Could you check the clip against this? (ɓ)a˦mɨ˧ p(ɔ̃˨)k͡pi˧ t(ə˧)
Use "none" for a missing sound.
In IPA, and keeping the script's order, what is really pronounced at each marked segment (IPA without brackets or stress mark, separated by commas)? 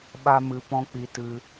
ɓ, ɔ̃˦, ɨ˧